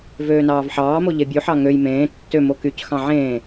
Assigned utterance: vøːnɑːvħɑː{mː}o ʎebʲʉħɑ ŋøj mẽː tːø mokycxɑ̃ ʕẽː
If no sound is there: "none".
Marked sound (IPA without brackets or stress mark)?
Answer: m